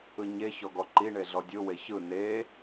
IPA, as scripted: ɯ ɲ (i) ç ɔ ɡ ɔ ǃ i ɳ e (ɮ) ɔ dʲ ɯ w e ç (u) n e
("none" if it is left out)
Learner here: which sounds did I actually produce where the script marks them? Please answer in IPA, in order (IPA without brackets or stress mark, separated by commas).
e, ɮ, ɯ